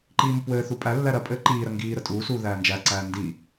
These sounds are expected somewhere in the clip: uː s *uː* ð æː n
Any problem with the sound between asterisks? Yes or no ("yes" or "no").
no